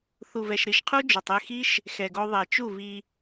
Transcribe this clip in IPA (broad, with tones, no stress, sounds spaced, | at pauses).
θ u˨ v ɛ˨ ʃ ɾ i˨ ʃ qʰ u˦ d͡ʒ o˨ tˤ e˦˨ x i˦ ʃ | x ɛ˨ ɡ o˧ ðˤ e˨ t͡ʃ u˦˨ v i˧